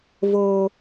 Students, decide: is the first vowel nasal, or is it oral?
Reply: oral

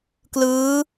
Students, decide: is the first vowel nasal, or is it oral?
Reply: oral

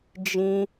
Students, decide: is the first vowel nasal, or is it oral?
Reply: nasal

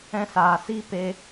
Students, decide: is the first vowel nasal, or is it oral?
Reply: nasal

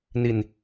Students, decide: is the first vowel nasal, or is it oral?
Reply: oral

